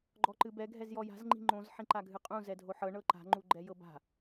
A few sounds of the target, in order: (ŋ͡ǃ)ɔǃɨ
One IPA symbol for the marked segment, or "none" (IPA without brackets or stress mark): ɡ͡ǃ